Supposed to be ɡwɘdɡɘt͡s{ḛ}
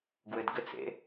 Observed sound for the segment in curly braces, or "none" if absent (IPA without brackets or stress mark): ḛ